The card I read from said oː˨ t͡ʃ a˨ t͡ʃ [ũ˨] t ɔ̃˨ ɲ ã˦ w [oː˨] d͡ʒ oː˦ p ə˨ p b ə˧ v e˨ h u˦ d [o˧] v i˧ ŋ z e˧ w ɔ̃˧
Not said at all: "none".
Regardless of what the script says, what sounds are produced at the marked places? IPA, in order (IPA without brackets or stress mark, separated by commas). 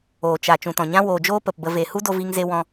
ũ˨, oː˨, o˧